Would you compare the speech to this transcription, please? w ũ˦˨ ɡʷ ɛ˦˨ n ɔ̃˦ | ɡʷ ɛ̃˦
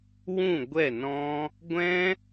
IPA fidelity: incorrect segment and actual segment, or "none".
none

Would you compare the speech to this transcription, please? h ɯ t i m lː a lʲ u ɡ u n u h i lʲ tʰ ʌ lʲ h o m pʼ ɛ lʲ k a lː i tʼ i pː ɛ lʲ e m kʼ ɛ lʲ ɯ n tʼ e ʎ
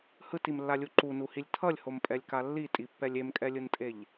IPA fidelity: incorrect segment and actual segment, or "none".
ɡ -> ǃ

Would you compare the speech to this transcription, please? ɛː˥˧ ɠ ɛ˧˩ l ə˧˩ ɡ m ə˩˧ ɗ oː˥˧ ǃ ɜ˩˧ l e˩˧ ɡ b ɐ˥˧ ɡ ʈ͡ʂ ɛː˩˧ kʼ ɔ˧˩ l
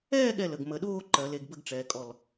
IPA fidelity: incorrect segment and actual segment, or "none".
ɐ˥˧ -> ə˥˧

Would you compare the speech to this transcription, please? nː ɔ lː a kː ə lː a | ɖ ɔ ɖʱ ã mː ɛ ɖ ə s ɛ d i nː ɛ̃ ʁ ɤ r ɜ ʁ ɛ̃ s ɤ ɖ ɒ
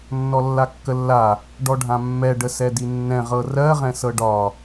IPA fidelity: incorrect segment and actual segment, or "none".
none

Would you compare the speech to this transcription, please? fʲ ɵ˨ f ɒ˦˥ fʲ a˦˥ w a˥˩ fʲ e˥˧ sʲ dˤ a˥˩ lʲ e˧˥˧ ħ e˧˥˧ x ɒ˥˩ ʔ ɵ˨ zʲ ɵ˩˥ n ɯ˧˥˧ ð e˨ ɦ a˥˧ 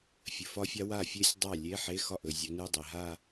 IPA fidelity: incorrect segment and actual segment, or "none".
ð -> dˤ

